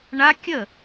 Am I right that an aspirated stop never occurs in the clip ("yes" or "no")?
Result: yes